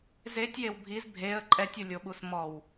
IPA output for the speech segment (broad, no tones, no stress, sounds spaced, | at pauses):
z e tʲ j e w bʱ i z bʱ e ə̯ ǃʼ ɛ tʲ u lʲ o ɓ u s m ɔ w